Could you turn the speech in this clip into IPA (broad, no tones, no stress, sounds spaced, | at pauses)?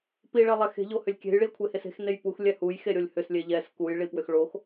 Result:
p i ɭ ɛ lˠ ɛ x e̤ ʎ o h ʏ lʲ kʲ e̤ j ɭ i ɐ̯ kʷʰ e h e s e̤ x n e j p u x lʲ ɛ h u j x e ɾʲ o lʲ h ʏ s lʲ e ʎ ɛ s k u j ɭ i p w ʏ x ɭ o x